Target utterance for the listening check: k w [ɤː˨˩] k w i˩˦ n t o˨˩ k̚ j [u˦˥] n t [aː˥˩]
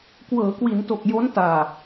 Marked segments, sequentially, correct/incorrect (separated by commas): incorrect, incorrect, incorrect